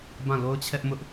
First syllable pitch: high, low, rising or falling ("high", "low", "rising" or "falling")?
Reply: falling